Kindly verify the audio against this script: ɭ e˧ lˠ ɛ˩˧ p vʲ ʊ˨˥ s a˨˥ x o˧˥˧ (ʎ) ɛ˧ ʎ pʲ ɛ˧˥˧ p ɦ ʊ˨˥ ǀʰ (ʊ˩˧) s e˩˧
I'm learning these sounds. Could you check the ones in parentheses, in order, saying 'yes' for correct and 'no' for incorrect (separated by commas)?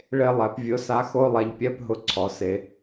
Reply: no, no